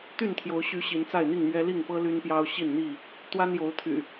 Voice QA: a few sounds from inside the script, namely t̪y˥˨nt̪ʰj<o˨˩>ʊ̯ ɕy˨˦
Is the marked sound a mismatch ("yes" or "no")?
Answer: yes